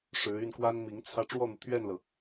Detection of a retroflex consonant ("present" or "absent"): present